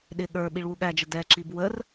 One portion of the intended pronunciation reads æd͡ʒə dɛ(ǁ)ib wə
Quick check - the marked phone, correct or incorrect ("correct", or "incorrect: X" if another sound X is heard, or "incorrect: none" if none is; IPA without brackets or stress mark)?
correct